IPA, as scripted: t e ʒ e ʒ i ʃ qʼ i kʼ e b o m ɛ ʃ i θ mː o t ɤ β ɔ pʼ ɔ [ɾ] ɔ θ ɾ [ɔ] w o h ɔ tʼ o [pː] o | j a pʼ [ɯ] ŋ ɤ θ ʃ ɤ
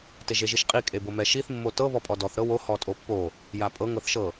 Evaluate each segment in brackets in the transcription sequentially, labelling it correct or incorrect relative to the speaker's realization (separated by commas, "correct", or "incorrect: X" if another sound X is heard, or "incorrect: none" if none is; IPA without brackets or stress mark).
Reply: incorrect: d, incorrect: ɤ, correct, incorrect: ɤ